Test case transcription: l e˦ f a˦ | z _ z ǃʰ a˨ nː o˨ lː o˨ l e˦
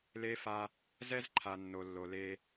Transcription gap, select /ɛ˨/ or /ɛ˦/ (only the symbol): ɛ˦